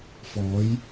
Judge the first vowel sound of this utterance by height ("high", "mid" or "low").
mid